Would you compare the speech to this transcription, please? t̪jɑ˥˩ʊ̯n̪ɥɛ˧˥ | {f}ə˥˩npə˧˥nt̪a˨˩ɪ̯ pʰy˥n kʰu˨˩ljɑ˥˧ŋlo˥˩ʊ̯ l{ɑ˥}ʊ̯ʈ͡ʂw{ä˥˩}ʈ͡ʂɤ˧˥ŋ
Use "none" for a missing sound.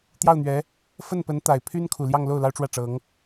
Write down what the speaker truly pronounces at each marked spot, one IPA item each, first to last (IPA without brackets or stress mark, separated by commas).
f, ɑ˥, ä˥˩